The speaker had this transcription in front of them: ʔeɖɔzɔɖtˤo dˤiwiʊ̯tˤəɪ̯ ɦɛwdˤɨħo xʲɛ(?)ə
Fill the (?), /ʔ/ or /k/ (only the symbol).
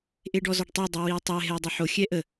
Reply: ʔ